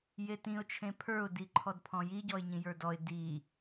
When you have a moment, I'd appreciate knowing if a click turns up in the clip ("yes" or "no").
yes